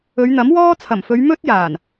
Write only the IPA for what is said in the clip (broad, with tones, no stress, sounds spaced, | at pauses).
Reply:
ɵ˨˧ ɥ n̪ ɐ˨˥ m w ɔː˥ t͡sʰ ɐ˨˩ m f ɵ˨˧ ɥ m ɵ˥ t̚ j aː˨˩ n